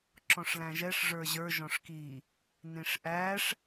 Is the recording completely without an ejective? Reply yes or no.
yes